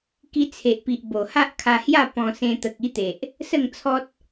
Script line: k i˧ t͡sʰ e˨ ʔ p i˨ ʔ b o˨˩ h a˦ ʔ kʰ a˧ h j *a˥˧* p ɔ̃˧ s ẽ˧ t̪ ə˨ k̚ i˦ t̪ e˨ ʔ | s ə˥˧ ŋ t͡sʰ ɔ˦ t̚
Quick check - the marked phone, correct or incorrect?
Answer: correct